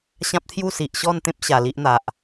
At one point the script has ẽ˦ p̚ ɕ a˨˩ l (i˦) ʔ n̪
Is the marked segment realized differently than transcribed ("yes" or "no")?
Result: no